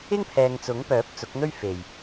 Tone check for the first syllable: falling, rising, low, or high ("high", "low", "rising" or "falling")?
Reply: high